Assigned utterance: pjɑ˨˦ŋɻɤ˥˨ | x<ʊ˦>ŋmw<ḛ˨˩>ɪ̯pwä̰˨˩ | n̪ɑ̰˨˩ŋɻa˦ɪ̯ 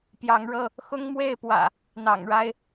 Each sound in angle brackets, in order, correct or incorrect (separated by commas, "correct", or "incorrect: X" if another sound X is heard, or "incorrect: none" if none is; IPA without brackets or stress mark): correct, incorrect: e˥˨